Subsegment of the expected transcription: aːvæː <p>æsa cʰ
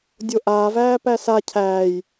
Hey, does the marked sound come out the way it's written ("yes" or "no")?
yes